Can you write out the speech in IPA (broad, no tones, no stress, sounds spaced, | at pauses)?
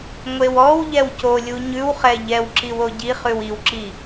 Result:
ŋʷ e w ɔ w ʎ ɛ w c o lʲ u ɲ ʉ w χ ɛ ʎ ɛ w ǁ i w o ɟ i χ ʉ w i w ǁ i